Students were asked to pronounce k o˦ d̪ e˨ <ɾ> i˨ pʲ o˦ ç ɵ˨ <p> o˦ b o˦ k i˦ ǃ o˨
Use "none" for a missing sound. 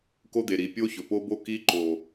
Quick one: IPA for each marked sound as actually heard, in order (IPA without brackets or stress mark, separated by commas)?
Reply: ɾ, p